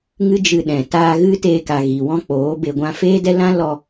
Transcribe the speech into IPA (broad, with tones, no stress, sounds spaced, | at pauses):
ŋ ɨ˦ d͡ʒ ɨ˧ ɗ ɛ̃˨ t aː˧ ɣ ɨ˦ t eː˧ k a˨ ɣ i˨ w ɔ̃˦ k͡p oː˨˦ b e˨ ɡʷ ã˧ f eː˦ d ɛ˦ l ã˦ l ɔ˧